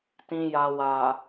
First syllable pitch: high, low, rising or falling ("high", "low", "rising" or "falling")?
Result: low